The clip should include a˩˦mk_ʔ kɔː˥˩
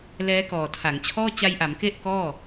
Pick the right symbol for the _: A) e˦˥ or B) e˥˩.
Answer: A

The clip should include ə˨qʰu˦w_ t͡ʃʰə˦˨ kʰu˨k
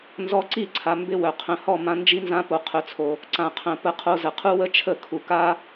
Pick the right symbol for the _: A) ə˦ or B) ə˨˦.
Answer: A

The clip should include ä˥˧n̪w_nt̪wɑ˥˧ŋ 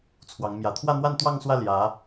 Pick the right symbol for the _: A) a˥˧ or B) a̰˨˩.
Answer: A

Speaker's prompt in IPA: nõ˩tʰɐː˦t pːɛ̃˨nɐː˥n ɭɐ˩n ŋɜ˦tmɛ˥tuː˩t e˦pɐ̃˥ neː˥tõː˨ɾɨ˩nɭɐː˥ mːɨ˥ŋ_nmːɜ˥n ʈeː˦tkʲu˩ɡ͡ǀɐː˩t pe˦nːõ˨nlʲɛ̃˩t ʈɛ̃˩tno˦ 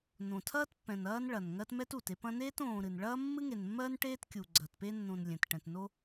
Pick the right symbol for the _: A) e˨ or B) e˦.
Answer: A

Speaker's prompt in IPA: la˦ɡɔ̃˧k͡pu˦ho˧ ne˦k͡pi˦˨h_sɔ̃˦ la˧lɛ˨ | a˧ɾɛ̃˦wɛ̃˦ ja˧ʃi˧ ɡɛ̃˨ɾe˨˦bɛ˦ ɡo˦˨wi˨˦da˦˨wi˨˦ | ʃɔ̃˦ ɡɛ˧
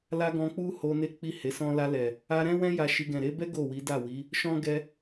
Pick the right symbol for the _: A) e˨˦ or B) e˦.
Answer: A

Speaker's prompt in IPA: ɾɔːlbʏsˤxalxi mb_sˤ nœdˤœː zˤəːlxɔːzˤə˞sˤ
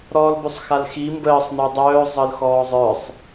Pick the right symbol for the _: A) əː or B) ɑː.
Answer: A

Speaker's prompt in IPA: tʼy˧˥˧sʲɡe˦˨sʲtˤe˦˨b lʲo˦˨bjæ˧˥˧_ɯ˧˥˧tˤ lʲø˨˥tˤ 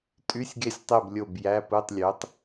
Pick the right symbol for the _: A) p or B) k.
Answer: A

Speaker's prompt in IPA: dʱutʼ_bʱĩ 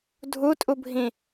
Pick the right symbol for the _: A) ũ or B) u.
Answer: B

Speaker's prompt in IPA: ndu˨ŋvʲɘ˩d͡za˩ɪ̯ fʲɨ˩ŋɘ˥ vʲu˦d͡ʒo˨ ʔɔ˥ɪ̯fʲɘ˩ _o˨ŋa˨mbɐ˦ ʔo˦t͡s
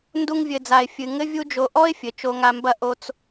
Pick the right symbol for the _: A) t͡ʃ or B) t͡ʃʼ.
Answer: A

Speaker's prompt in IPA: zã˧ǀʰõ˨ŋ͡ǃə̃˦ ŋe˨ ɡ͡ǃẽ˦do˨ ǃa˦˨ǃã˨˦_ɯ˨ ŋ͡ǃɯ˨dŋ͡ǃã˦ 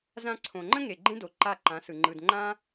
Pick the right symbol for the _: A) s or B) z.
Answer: A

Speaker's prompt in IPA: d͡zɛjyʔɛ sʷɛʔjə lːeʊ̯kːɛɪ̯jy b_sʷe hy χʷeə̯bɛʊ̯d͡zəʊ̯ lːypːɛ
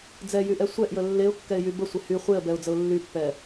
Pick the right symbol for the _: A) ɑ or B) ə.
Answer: B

